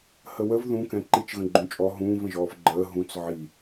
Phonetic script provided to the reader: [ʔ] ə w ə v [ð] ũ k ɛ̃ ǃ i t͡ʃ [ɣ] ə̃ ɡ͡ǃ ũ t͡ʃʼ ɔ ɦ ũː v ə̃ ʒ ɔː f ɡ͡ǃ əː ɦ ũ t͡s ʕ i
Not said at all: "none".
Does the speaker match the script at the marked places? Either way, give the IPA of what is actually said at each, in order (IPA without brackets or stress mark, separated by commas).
h, ð, ɣ